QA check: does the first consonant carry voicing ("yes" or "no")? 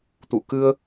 no